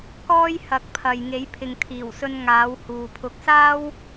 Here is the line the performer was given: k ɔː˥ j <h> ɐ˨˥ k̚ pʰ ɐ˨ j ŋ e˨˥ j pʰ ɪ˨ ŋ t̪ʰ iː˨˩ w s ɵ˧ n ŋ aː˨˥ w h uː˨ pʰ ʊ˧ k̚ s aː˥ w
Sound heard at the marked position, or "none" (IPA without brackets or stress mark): h